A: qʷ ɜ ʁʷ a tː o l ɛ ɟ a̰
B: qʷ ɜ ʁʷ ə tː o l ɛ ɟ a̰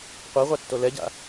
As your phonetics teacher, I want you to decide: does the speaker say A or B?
A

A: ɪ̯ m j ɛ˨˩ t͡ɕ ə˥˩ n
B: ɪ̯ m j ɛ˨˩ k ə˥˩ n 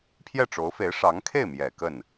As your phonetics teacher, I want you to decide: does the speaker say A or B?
B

